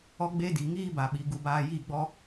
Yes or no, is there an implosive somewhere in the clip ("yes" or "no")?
yes